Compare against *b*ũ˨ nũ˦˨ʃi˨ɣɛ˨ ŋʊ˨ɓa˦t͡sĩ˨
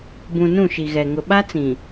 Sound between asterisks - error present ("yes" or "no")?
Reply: no